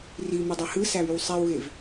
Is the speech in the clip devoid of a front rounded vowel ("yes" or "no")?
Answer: no